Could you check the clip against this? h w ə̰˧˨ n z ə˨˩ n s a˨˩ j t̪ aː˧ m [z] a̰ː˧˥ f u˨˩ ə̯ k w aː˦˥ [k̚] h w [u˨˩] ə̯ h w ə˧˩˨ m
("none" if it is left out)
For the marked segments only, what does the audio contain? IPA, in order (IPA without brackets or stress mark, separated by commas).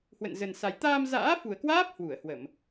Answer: z, p̚, u˧˩